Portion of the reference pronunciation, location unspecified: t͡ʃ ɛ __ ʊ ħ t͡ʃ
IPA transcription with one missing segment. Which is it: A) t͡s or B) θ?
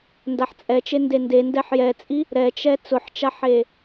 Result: A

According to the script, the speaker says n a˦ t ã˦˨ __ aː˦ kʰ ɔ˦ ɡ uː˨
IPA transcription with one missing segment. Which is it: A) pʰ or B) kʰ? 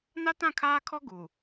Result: B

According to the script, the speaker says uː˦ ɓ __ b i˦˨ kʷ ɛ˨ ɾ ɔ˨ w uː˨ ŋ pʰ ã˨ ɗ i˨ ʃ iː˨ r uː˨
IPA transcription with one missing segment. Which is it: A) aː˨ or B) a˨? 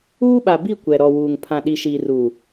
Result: B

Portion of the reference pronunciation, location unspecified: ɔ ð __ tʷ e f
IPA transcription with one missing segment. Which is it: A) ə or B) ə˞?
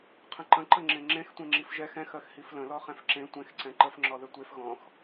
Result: A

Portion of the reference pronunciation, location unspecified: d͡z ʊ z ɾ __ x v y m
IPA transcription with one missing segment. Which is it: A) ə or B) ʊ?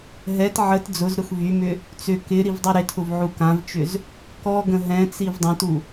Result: B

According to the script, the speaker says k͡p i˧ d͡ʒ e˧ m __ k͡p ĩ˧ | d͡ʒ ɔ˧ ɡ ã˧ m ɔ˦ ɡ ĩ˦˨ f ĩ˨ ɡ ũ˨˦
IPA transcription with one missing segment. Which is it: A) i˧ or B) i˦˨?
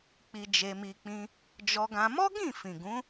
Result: A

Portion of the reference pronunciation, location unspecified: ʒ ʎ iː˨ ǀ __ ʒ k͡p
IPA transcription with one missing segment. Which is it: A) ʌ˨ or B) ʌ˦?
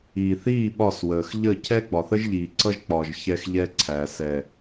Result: B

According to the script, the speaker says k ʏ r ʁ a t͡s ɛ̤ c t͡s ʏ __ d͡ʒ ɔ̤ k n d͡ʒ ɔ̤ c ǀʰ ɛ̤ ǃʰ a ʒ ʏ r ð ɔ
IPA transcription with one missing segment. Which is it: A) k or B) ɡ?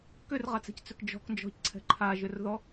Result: A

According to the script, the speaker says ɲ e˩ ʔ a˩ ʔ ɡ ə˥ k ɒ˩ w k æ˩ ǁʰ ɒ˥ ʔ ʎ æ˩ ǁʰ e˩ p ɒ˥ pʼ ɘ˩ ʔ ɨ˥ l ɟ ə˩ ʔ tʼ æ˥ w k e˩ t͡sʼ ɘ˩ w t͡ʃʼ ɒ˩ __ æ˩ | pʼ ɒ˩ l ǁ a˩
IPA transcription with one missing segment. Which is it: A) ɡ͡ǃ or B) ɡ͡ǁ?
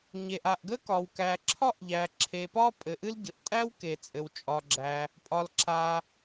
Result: B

